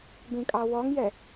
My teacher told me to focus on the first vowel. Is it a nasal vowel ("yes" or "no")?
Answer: yes